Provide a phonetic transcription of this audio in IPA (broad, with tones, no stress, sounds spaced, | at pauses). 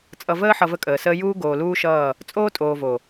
t͡sʼ ʌ˨ v əː˦ ħ ʌ˨ v ə˦ kʼ əː˨ s əː˦ j uː˦ ɡ oː˨ l uː˦ ʃ ʌː˦˨ | t͡sʼ oː˦ tʼ oː˨ v o˨